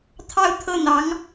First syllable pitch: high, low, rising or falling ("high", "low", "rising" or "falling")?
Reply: falling